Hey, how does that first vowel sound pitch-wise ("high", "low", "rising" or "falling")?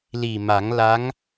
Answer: low